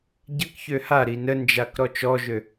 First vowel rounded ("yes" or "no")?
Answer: no